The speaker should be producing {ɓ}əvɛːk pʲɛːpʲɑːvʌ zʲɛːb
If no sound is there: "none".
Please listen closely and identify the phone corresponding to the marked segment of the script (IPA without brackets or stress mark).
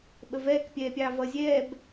ɓ